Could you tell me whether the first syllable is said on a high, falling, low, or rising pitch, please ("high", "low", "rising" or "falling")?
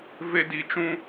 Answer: high